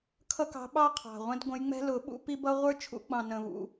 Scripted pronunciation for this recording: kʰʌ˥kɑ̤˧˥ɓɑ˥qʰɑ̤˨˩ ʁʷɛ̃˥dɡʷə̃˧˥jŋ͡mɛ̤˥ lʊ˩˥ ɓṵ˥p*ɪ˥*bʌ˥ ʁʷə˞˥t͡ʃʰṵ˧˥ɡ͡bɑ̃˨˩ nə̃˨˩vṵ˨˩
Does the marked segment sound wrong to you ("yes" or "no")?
yes